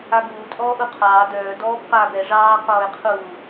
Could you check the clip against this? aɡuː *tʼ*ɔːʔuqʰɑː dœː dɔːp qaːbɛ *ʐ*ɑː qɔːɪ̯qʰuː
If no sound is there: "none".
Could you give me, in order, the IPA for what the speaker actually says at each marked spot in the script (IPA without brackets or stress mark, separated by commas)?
tʼ, ʐ